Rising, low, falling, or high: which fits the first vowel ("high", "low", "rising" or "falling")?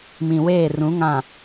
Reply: low